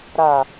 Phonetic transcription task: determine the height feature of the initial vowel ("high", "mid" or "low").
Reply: low